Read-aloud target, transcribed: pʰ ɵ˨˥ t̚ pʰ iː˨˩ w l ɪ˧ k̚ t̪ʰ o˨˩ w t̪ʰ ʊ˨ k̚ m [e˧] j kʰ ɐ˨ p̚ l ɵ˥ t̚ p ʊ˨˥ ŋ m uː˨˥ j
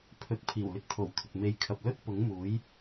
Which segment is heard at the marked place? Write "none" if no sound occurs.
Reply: e˧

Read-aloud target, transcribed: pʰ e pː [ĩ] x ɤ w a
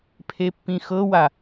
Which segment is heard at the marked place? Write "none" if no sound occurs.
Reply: ĩ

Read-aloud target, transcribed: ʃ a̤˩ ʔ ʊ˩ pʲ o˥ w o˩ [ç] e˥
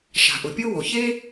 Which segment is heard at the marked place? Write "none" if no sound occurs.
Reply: ç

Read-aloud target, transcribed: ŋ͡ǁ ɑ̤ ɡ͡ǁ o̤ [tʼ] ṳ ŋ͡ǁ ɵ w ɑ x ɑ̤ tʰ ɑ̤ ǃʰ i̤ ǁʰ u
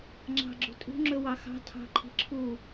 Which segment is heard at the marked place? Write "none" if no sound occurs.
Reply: tʼ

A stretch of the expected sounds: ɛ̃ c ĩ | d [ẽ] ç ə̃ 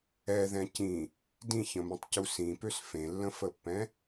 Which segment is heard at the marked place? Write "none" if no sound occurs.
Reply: ĩ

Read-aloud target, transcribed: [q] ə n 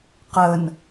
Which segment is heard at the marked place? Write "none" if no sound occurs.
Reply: q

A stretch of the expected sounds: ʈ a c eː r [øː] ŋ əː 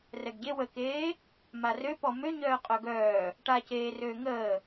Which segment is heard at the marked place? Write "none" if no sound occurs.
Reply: øː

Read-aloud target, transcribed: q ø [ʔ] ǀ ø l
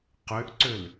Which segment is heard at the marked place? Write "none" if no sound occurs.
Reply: ʔ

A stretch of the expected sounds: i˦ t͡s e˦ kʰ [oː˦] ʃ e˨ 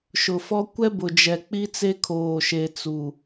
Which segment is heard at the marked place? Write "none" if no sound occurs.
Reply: oː˨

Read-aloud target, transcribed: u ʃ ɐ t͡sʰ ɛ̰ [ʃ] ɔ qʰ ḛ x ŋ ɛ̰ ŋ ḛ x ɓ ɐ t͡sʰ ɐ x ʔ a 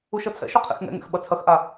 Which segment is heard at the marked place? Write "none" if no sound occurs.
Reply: ʃ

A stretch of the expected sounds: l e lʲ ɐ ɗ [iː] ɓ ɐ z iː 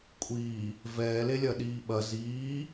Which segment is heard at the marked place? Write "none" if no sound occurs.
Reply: iː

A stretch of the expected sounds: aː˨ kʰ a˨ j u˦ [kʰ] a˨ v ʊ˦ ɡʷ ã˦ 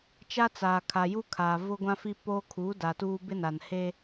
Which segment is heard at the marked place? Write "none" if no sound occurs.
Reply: kʰ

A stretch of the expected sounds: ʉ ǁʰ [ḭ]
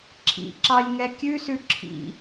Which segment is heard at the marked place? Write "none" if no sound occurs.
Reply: ḭ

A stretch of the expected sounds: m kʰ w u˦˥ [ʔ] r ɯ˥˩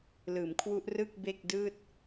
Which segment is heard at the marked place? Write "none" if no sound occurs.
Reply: ʔ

